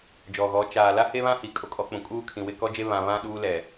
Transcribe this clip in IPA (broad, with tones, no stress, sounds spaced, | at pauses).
d͡ʒ ɔ˨ ɣ ɔ˨˦ t͡ʃ aː˨ l a˦ h e˦ β ã˦ h i˨ kʼ o˦ kʼ ɔ˦ k͡p ũ˨ kʼ uː˦ kʰ ĩ˨ w ɪ˦˨ k ɔ˦ d͡ʒ e˦ β ã˨ β ã˦ ɗ uː˦ l ɛ˨